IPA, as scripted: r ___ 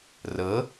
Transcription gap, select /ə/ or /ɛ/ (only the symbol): ə